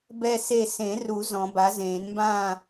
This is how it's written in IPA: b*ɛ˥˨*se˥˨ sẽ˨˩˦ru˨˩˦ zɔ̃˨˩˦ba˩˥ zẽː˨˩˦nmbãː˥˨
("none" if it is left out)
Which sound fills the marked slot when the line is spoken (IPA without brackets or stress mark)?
ɛ˥˨